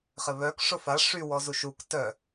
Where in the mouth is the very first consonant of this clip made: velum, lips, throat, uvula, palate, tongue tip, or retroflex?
uvula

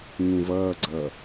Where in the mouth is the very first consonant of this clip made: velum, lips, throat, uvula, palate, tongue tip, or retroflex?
velum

